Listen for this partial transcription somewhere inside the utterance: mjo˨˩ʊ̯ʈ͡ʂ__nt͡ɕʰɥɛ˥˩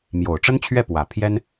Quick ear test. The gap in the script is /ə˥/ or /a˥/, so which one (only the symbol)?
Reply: ə˥